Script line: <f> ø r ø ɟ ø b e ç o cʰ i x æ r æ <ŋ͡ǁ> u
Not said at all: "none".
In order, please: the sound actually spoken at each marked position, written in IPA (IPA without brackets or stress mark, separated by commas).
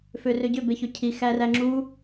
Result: f, ŋ͡ǁ